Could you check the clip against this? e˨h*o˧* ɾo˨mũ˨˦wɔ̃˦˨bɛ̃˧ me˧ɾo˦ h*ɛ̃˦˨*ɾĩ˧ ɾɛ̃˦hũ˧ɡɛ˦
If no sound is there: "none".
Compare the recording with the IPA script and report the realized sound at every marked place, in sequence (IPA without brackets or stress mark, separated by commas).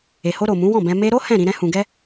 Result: o˧, ɛ̃˦˨